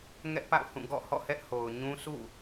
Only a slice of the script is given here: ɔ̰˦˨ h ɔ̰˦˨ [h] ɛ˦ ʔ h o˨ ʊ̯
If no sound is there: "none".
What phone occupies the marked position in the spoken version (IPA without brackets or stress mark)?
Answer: h